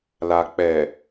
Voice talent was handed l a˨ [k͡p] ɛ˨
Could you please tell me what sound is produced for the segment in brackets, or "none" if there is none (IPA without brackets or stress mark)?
k͡p